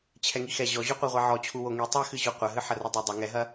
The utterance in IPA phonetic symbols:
t͡ɕʰɛŋixɛ ʑɔʑuqʷiʁʷɛ ʕɔt͡ɕʰuwo ŋi tˤɛxɨʑo qʷɐɦɨ ħɐrɨdˤɛ dˤɐ ŋɛɦɐ

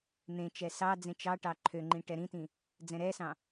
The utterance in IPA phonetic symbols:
n̪ẽt͡ʃɛ sɑ d͡zẽt͡ʃɑʈɑ ǃʰøŋ͡ǃĩ ʈɛɾĩtĩ | d͡zɛ̃ɾɛsɑ̃

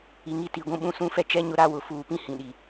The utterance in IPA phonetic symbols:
i˨ŋi˦ti˨ɡʷũ˦ ɓũ˦sũ˦fɛ˦t͡ʃɛ˦ ɲʊ˦ɾa˦ wʊ˨ fuː˨pĩ˦˨ hĩ˨ɗi˨

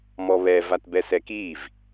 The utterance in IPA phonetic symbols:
mɔβɛ vatbɛsɛkiv

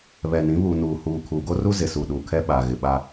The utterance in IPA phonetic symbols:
βɛ˨nĩ˨˦ βu˨nuː˨huː˨ kʰuː˨ɡo˦ru˦ zɪ˨su˨ ɗuː˨kʰɛ˦ ɓa˨ɣɪ˨ɓa˦

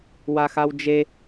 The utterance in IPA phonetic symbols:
waxawd͡ʒe

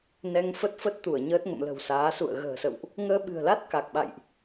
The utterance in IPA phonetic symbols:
nɛ˧ŋ fə˦˥t̚fə˦˥t̚t̪u˧˩ə̯ ɲəː˦˥t̚ŋə̰˧˨mlə̤˨˩wsaː˨˦ sṵ˧˨ə̯ ɣə̤ː˨˩sə̰˧˨wʔ | ŋəː˧ɓɨ̤˨˩ə̯la˦˥t̚ ka˨˩k̚ɓa̰˧˨jʔ

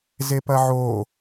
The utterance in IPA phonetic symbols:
zepɐʕoː

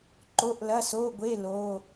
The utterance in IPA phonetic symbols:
ǃo˧˥˧ʔlɐ˧˥˧soː˧˥˧ɡʷe˧˥˧ loː˧˥˧

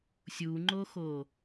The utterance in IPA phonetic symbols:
sʲuŋ͡ǃoxo

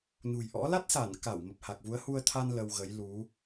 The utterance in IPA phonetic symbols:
nṳ˨˩jʔɔ̰˧˥ la˦˥t̚sa˧˩n ka˧˩w mə˨˩p̚ha˨˩k̚vu˨˦ə̯ hu˧ə̯t̪ʰa˧n lə˧wɣə˨˦j lu˨˦

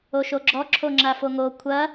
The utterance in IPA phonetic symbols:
oʃoɡ͡ǁɔ ǁʰoŋ͡ǁafoŋo kʷʰɐ

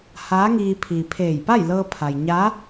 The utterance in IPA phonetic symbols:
haː˧˥ŋiː˧ pʰiː˩pʰeː˧˩j pa˥˨jlɤː˧pʰa˩jɲa˧˥

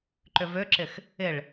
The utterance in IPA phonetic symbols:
ǃʏvøǁɪx | ɪɭ

